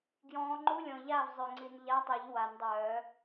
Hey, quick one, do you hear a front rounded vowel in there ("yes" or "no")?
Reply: yes